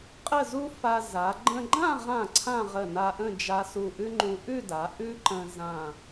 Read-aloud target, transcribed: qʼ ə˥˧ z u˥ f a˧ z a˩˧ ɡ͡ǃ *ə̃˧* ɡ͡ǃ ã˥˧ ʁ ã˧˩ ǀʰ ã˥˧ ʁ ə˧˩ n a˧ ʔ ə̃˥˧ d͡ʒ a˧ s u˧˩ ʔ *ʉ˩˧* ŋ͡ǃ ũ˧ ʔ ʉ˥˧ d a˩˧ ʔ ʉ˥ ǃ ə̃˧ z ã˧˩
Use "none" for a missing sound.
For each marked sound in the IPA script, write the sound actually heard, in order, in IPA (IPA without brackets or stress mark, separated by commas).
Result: ə̃˧, ʉ˥